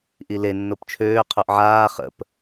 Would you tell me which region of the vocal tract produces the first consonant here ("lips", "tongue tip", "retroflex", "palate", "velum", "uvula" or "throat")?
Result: throat